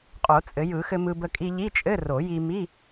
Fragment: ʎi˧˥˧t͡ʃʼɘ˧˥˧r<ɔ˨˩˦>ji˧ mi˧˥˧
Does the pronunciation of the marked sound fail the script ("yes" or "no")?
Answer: yes